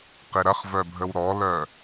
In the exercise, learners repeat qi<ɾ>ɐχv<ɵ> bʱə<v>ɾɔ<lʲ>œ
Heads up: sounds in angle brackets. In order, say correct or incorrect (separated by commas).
correct, incorrect, incorrect, incorrect